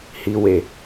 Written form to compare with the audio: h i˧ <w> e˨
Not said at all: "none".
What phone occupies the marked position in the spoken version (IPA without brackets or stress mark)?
w